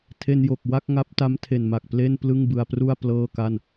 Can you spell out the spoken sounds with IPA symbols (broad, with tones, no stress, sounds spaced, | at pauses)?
tʰ e˧ n j o˨˩ k̚ w a˥˩ k̚ ŋ a˦˥ p̚ t a˦˥ m tʰ e˨˩ n m a˨˩ k̚ p l e˥˩ n p l ɯ˥˩ ŋ b ɯ˧ a̯ p r u˥˩ a̯ p l ɤː˥˩ k a˥˩ n